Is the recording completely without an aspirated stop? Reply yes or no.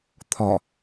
no